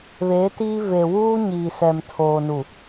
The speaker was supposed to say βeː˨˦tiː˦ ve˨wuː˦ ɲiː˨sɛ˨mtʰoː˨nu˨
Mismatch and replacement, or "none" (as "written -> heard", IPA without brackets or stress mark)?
none